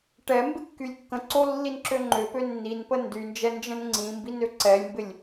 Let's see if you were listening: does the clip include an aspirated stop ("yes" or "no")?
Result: no